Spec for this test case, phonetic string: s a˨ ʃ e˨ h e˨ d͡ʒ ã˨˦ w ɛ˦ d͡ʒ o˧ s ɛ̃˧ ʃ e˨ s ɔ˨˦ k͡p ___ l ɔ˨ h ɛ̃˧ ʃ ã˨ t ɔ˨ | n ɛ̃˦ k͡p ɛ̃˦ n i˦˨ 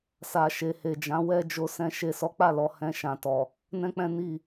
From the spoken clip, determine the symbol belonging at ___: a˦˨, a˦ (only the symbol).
a˦˨